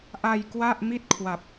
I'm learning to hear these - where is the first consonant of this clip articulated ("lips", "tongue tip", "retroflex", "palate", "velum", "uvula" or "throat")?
throat